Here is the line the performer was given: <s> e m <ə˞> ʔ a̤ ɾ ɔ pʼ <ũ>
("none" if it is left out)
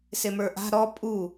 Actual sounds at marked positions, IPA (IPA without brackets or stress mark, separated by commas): s, ə˞, u